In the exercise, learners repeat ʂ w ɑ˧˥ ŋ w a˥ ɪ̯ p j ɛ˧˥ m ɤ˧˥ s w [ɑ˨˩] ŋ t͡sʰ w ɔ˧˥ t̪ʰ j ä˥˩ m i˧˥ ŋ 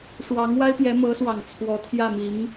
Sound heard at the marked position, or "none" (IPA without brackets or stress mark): ɑ˨˩